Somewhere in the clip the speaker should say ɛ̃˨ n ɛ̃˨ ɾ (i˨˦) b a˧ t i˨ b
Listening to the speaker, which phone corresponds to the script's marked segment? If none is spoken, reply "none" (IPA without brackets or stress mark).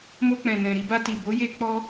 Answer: i˧